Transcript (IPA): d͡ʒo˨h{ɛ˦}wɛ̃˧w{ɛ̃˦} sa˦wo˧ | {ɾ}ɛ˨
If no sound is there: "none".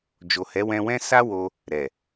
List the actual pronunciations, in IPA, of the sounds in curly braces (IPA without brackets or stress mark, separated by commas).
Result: ɛ˨˦, ɛ̃˦, ɾ